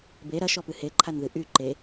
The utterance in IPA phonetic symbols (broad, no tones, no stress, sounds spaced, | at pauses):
b e ɾ ɐ ʃ ɔ p ɨ h e ǃʰ a n ð ɨ ʔ y ǃ e